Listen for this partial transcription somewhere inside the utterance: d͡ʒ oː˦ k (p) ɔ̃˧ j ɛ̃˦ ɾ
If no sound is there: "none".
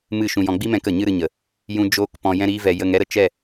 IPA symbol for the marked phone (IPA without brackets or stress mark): p